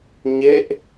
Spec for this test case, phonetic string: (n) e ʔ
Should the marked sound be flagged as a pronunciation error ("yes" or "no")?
yes